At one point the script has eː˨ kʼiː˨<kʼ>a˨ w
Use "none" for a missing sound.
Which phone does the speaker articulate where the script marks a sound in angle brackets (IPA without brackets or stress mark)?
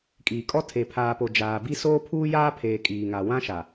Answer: ŋ